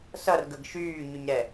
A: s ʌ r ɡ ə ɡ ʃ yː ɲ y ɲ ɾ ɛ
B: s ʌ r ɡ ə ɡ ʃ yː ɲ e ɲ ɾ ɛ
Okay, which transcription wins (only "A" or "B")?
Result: A